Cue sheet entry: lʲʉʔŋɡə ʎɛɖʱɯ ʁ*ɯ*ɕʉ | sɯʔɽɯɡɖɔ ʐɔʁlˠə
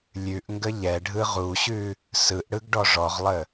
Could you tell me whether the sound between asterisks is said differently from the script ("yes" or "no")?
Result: yes